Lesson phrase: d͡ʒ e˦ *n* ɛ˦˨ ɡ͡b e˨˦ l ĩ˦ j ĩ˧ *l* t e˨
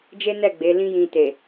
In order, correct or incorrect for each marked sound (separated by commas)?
correct, incorrect